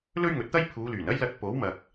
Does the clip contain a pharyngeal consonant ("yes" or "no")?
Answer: no